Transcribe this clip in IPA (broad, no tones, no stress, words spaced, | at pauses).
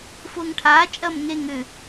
fʊːŋʈʰaː t͡ʃʼɐːmŋe ŋʏ